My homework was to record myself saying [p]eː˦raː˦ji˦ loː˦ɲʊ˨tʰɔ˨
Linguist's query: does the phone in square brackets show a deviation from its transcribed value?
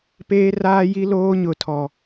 no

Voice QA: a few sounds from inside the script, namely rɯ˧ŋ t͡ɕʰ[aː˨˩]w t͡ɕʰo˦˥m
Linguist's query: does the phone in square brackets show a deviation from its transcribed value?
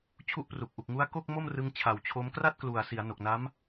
no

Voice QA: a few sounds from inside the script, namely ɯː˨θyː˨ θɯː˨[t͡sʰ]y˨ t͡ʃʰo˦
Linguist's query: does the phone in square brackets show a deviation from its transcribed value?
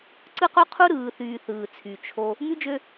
no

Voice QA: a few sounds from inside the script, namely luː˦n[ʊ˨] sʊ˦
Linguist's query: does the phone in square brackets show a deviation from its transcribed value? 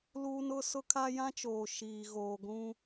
yes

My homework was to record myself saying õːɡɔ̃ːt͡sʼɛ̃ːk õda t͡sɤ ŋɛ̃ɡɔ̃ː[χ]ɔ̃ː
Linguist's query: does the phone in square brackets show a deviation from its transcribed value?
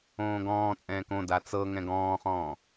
no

